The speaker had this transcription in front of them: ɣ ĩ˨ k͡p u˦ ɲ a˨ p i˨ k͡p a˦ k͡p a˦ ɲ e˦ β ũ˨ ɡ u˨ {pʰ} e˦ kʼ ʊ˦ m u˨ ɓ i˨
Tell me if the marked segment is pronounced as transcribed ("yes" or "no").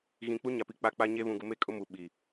no